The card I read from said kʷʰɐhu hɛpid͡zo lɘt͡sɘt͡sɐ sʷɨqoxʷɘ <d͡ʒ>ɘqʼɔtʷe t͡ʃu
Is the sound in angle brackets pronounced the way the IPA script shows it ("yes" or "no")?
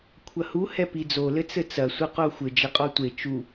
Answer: yes